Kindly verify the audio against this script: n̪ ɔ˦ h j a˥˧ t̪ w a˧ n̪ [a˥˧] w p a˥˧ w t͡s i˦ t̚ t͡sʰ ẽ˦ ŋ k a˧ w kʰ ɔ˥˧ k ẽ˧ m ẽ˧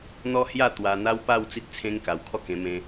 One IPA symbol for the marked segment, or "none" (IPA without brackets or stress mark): a˦